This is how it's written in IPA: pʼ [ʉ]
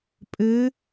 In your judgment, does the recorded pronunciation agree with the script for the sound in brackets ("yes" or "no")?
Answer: no